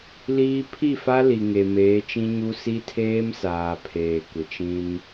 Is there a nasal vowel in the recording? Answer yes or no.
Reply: yes